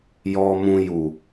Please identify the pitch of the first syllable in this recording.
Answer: high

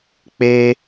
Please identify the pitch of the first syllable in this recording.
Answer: high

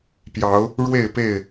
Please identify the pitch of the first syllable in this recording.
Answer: rising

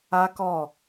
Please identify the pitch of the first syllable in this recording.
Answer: high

